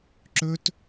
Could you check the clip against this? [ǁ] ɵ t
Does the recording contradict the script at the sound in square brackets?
no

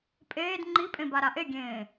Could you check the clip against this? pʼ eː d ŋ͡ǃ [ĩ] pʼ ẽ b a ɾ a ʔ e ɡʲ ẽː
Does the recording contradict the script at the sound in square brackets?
yes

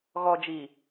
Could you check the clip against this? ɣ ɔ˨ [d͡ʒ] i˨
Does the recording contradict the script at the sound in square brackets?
no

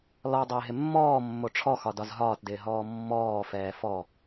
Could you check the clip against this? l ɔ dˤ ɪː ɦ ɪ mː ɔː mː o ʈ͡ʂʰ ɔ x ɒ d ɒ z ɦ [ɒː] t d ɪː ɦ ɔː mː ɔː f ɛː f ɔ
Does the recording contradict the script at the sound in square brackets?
no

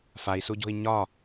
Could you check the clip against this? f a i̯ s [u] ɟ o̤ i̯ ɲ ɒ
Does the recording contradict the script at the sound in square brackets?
no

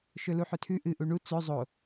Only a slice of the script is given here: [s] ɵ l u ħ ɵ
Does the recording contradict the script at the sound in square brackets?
yes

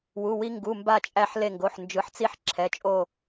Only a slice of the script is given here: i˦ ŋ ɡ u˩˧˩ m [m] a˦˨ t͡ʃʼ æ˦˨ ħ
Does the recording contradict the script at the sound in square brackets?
yes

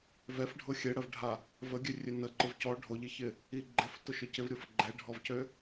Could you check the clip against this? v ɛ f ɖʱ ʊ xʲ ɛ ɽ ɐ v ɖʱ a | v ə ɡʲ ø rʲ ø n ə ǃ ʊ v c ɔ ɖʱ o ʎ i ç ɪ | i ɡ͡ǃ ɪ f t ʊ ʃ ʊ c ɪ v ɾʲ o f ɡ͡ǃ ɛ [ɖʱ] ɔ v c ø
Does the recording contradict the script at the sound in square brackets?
no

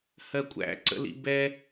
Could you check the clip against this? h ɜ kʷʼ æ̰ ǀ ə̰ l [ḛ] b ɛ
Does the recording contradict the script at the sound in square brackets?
yes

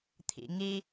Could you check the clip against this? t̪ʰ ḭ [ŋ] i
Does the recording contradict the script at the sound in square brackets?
no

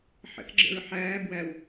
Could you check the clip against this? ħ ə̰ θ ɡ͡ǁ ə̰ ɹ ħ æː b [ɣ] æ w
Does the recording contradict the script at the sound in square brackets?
yes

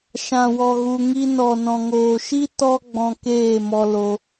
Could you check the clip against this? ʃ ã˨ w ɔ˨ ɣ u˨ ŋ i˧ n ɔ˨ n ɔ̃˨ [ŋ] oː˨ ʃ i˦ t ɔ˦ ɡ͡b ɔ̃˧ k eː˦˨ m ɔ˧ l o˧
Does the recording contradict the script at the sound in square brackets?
no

